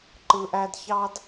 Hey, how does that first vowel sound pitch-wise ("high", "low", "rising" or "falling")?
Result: low